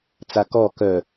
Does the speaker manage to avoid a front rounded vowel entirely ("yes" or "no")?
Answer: no